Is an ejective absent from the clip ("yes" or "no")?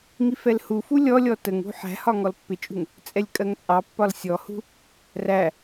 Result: no